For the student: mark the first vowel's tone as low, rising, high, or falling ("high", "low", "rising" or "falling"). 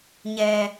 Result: low